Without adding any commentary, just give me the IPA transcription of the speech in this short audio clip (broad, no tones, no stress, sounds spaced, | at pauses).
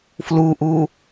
f l u ʔ u